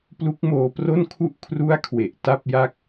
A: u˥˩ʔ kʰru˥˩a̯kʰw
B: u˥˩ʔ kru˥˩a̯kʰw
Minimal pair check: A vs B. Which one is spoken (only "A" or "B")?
A